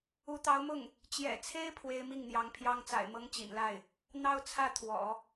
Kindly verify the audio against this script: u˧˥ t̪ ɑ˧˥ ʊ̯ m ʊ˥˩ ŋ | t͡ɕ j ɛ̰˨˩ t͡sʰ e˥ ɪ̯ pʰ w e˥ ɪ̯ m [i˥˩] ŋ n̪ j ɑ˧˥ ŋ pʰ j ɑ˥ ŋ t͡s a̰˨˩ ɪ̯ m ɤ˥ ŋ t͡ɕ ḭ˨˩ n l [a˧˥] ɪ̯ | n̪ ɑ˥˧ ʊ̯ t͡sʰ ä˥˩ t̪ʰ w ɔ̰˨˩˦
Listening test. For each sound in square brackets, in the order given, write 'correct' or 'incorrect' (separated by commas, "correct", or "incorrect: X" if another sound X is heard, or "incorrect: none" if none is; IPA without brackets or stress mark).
correct, incorrect: a˥˩